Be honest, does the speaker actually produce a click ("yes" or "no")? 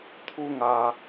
no